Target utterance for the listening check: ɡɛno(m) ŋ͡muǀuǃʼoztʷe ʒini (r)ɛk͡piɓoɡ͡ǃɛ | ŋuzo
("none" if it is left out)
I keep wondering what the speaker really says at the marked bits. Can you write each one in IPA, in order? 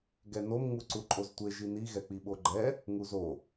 m, ɣ

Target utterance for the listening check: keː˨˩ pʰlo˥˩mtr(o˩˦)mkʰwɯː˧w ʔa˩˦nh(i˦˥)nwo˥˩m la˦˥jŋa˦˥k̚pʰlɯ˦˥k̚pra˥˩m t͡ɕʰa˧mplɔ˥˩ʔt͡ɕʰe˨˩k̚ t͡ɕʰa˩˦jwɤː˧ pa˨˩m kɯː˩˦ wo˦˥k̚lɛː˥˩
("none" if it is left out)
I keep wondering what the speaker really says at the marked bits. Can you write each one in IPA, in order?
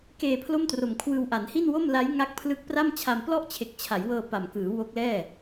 o˨˩, i˥˩

